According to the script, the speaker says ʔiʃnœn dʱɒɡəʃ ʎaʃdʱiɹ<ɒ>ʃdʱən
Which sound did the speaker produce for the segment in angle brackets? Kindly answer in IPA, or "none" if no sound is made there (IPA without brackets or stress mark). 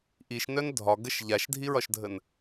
ɒ